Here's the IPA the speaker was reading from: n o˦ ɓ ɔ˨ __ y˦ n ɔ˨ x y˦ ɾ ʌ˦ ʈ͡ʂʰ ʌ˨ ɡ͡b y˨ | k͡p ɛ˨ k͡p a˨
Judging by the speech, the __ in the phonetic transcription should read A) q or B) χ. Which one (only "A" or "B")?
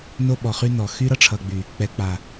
B